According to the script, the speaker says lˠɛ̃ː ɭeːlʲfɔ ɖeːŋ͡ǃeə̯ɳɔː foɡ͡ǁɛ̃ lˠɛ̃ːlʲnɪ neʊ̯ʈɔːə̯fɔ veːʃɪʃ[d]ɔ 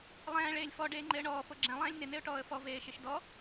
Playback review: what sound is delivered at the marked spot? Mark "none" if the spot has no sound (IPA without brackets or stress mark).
d